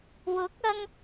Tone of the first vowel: rising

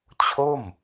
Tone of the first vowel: falling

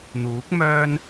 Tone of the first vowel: rising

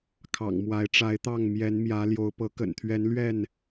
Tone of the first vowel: low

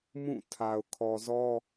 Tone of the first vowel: falling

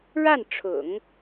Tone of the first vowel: falling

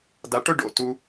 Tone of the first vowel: low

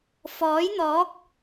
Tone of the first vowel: rising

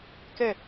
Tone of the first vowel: falling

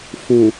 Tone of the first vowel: low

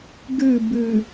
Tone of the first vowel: falling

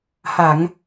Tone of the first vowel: low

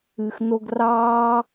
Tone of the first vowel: low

